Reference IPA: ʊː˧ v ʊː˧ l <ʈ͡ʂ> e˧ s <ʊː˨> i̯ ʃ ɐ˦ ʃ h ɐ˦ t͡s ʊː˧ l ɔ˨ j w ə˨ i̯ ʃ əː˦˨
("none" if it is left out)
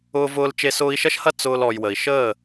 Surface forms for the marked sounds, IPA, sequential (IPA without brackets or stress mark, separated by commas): t͡ʃ, ʊː˧